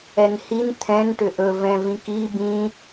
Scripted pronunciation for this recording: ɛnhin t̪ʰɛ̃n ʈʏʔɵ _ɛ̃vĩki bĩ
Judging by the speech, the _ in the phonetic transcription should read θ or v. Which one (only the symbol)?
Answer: v